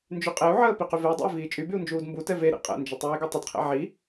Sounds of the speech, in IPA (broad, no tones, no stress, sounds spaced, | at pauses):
n d͡ʒ y qʼ e u̯ ʕ əː p i q y v e i̯ dˤ ɛ̰ i̯ v iː t͡ʃʼ y b y u̯ n d͡ʒ uː d m b u t ɛ v e ɾ ḭ qʼ ɛ̰ n d͡ʒ ə tˤ iː ɡ ɛ tˤ ə d qʰ ɛ̰ ʕ i